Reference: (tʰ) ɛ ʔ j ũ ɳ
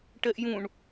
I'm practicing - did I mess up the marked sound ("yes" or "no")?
yes